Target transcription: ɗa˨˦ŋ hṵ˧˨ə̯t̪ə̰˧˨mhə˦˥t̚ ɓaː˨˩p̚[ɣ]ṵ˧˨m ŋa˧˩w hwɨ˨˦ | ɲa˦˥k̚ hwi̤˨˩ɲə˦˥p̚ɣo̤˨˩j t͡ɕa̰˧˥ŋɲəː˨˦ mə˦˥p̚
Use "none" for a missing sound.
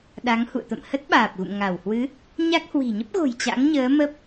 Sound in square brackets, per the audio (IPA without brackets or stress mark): ɣ